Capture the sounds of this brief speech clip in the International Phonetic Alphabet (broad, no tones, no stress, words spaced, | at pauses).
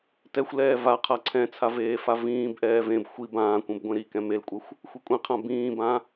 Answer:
tɛxʷlɛː va qʰaǀʰɛ̃t͡sʰa veːfavĩːbʔɛː vẽb xʷi bãːkʷẽb ɡʷẽɾikɛ̃ melkʷʼɛxʷ | xʷikʷʼĩqʰã bĩːbã